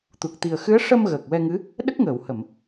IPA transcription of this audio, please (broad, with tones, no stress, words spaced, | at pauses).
t̪u˨˩k̚t̪i˨˩ə̯xɨ˧˥ə̯ ʂə˧m ɣəː˨˩k̚wɛ˧ŋɨ˧˥ | ɗə˦˥k̚ŋəː˨˩˨whə˨˩˨m